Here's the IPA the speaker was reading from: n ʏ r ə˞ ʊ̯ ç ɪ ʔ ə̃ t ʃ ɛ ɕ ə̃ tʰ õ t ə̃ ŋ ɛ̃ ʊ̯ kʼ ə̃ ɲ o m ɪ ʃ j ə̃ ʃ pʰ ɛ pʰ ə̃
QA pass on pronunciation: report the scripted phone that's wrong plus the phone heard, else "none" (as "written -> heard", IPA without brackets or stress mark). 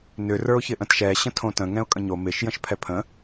none